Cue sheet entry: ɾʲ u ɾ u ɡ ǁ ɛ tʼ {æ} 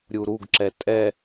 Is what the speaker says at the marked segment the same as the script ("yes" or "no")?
no